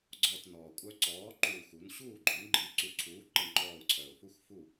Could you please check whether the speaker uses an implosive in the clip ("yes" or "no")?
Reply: no